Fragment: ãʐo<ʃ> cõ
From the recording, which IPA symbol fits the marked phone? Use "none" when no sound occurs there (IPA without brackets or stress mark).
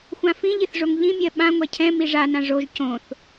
ʒ